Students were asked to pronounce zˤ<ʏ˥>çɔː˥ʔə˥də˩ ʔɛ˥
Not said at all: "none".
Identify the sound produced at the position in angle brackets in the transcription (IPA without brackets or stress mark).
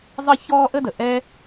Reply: ə˥